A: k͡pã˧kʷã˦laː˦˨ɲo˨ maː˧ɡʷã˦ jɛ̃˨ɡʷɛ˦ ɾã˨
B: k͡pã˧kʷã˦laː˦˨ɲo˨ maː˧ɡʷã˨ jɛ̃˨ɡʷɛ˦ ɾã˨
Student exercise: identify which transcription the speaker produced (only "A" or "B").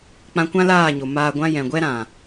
A